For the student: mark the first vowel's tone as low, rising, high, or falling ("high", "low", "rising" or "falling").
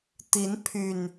rising